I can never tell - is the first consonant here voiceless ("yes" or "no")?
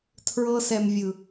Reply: yes